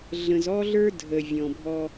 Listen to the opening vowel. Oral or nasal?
nasal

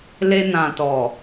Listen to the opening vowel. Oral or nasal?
oral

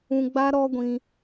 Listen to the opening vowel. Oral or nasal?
nasal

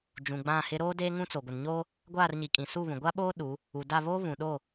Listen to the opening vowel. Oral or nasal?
nasal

